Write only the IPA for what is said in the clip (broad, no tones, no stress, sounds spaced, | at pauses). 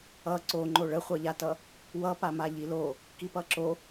ʌ ǀ o ŋ͡ǃ o ɭ ə χʷ ʌ ʎ a t ʌ | w ʌ p a m a ʎ i l o | k i p ʌ ǁ o